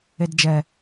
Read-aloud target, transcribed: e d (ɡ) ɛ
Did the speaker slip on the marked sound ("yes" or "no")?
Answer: yes